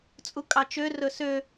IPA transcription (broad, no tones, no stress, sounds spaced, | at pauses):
t͡sʼ u kʼ ɑ t͡ʃ ø r ɵ s ø